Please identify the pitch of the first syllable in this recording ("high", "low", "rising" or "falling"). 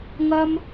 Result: high